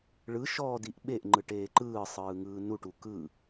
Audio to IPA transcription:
ɭ ɯ ʃ ɔː d i ʔ ɓ e ʔ ŋ͡ǃ ɯ ʈ eː ǃ ɯː sˤ ɯː ŋ ɯː n u ʈ u k ɯ

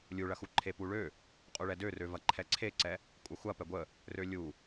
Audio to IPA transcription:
lʲ u ɭ ɐ x u ǃʰ e p u ɭ ø | qʼ u ɭ ɛ d ø r ø v ɐ ǃʰ ɛ ǀʰ e ǀ ɛ | kʷʼ ɐ xʷ ɐ p ɛ ɡʷ ə | r ø lʲ u

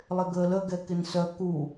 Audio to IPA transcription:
lˠ ɪ ɡ əː l ə ɡ ɛ k ɪ n s œ k u

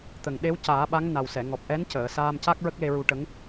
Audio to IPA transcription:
t̪ ə˨˩ ŋ ɗ e˧˥ w c aː˨˩˦ ɓ a˧˥ ŋ n a˨˩ w s ɛ˨˩˨ ŋ ɔ˨˩ p̚ ʔ ɛ˧˥ n c əː˨˩˨ s aː˧ m c a˦˥ k̚ ɹ ə˦˥ k̚ l e˧ ɹ u˧ ʈ ə˧˥ ŋ

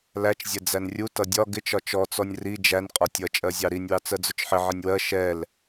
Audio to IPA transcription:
l æ t͡ʃ zʲ ɛ d͡z æ n rʲ u t ʌ dʲ ɒ ɡ ɪ t͡ʃ ɒ t͡ʃ ɔ t͡s ɔ nʲ r i d͡ʒ æ n qʼ ɒ tʲ ʌ t͡ʃʼ ɜ zʲ ɑ ɾ i nʲ w ɑ t͡s ɜ d͡z ʊ t͡ʃ ħ ɪ ʕ ɪ nʲ w ɜ ʃ ɛ l

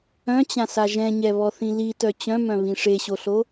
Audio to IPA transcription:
œ̃ t͡ɕ ã s a ʒ ɛ̃ ɲ ɛ β ɔ θ ĩ l i t œ t͡ɕ œ̃ m œ̃ β ĩ ʂ e ɕ o ɬ o

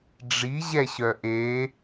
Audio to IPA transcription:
ɖ͡ʐ i ʑ ɛ ɕ œ ʔ e

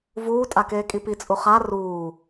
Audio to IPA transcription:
v uː tʼ a k eː kʼ i p i t͡sʼ u χ a r uː

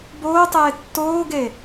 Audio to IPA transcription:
b oː tˤ eː tː oː ɡ e

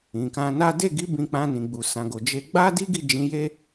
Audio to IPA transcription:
ĩ˨ k ã˧ n a˦ d e˦˨ ɡ i˨˦ b ĩ˧ k͡p ã˧ n ĩ˨ ɡ͡b u˨ s ã˨ ɡ o˨ d͡ʒ e˧ ɡ͡b a˦ d i˦ ɡ i˦˨ d͡ʒ ĩ˨˦ j e˦

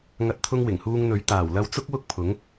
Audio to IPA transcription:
ŋ ɐ˨˥ t̚ t̪ʰ ʊ˧ ŋ w ɪ˨˩ ŋ h uː˧ ŋ n̪ ɵ˨˥ ɥ t̪ aː˨˩ w l ɐ˧ w t͡s ʊ˥ k̚ w ʊ˥ k̚ pʰ ʊ˨˥ ŋ

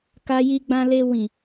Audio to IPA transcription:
k a˧ j i˧ ɡ͡b ã˧ l e˧ w ĩ˨

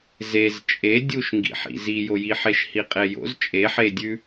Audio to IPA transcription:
z e z t͡ʃʼ e dʲ u ʃ ŋ ɡ ḭ ħ ḭ z i j o j i ħ e ʃ h i qʼ e j o̰ z t͡ʃʼ e ħ e dʲ ʉ

